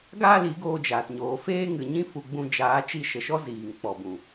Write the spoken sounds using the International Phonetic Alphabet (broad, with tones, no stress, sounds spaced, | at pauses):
ɡ aː˦ l i˨˦ ɡ oː˧ d͡ʒ aː˨ t ɲ oː˨ f eː˦ ŋ ɨ˨ ɲ ĩ˧ f u˨ ɡ͡b ũ˧ d͡ʒ aː˨˦ t͡ʃ i˧ ʃ ə˨ ʃ ɔ˦ z iː˨ ŋ k͡p ɔ˨ b ũ˨